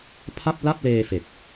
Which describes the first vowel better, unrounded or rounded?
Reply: unrounded